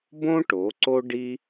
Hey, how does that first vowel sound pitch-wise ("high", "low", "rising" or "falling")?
high